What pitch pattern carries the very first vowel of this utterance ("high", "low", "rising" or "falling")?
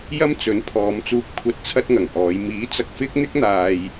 high